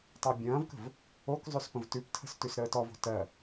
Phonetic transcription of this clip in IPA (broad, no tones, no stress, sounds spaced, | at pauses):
tˤ ə˞ bʲ ɐ̃ː v k ə̤ v | o k zˤ ʉ s p ə̃ v t ʉ p tʰ ə̤ s t ʉ s ɾ əː t ɔ v o̤ t ɜ